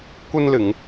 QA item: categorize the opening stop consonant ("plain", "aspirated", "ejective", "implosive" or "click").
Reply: plain